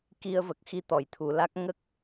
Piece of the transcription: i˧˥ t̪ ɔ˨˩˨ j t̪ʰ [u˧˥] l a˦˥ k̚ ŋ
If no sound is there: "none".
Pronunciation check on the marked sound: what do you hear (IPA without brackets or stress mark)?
u˨˩˨